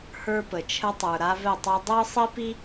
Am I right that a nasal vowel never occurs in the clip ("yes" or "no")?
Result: yes